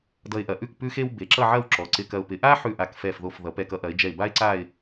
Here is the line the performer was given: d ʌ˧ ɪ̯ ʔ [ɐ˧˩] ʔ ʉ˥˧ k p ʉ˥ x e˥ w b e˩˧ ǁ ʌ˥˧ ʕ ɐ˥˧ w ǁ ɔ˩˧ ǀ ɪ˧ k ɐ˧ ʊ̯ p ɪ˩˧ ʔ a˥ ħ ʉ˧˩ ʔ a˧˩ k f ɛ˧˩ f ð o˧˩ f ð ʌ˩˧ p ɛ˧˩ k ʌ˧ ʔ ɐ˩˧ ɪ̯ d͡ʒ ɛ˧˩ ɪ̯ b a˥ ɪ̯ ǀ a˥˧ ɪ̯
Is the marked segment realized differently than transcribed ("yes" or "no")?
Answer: yes